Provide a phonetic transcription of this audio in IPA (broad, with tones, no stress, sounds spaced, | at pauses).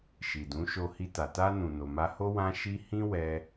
ʃ i˨ d ũ˨˦ ʃ o˧ h i˧ t a˨ t a˧ n ũ˨ n o˨ m a˧ h o˦ w ã˦ ʃ i˦ h ĩ˦ w ɛ˧